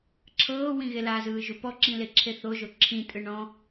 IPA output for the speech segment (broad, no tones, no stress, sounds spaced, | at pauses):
ǁʰ ɤː w ĩ ɣ e l a z ɯː ʒ u p ɔ ǁ ĩ l e ǁʰ e θ o ʒ o ǁʰ ĩ tʼ ɯ ɳ ɔ̃